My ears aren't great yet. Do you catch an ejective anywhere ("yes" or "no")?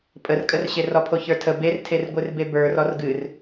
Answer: yes